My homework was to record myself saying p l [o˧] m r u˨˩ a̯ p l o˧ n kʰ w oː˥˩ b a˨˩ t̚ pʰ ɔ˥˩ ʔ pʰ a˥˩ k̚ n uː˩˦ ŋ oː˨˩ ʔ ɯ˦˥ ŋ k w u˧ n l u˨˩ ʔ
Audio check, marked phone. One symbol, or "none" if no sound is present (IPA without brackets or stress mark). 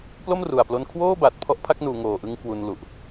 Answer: o˥˩